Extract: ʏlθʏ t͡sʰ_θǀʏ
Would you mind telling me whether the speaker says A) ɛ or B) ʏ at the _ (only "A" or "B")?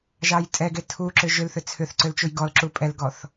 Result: B